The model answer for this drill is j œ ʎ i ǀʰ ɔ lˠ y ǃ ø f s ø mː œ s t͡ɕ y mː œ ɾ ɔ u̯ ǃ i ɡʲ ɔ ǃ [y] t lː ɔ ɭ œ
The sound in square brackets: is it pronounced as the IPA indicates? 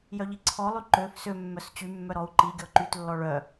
yes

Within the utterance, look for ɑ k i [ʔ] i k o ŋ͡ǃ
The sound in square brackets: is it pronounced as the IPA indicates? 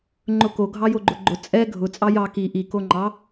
yes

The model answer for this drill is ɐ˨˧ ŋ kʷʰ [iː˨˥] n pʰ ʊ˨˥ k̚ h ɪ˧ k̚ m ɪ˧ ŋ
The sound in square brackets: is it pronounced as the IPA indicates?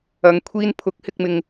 no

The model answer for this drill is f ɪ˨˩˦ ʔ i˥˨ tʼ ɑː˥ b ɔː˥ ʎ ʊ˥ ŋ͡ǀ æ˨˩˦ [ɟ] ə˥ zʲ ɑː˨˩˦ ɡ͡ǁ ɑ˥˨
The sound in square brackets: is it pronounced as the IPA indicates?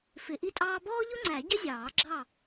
yes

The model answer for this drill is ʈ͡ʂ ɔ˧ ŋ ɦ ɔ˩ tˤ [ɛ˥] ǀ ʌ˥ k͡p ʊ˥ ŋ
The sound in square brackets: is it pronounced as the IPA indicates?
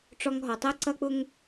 yes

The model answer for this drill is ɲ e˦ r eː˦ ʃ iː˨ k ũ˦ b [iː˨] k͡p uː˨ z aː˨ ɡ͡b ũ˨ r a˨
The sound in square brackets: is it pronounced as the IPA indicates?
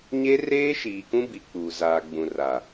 no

